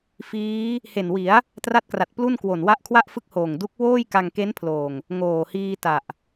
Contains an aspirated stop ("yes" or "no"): yes